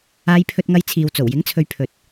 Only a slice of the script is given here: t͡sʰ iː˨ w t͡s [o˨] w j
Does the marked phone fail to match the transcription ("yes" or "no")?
yes